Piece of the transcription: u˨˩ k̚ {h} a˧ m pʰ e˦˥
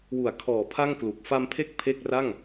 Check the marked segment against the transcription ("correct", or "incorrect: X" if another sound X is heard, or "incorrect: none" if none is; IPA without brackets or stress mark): incorrect: f